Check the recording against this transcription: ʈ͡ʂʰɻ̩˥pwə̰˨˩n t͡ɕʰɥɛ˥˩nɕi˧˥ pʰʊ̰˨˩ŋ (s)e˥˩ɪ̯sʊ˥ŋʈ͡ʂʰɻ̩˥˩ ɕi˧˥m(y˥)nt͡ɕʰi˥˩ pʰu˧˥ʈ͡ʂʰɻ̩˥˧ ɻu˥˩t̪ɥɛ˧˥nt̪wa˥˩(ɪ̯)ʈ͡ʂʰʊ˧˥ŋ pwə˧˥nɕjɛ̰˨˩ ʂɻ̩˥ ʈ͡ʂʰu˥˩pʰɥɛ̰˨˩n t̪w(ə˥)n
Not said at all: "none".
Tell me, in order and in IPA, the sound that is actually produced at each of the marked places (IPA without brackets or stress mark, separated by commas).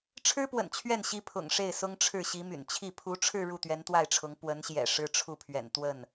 ʂ, y̰˨˩, ɪ̯, ə˥˩